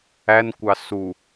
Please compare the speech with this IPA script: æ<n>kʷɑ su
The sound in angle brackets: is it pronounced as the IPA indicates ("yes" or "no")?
yes